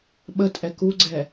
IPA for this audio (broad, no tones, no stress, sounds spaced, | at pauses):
ɓ ə tʼ ɛ k u ɡ͡ǀ ɛ